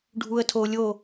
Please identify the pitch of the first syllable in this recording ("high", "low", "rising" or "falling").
low